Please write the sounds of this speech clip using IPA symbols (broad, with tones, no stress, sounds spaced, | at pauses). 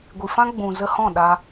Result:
ɡʷ i˨ f ã˦ ɡ͡b ũ˨ z ə˧ h ɔ̃˦˨ ɗ a˧